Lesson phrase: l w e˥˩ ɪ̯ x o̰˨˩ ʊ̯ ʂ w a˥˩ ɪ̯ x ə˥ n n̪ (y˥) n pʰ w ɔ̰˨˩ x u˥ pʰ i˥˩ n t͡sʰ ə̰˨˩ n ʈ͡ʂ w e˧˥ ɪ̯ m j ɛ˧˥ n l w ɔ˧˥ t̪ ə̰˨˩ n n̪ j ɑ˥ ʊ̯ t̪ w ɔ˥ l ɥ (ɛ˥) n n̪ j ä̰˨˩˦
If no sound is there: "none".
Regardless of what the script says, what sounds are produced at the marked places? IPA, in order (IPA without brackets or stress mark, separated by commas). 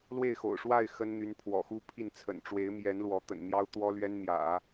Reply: y˧˥, ɛ˥